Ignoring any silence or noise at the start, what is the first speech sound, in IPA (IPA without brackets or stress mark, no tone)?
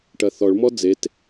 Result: ʈ